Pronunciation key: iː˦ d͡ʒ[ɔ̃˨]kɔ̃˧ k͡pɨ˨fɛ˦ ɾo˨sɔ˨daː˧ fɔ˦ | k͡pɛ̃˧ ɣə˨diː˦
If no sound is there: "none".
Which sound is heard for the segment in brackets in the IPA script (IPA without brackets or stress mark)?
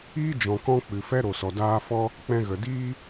ɔ̃˨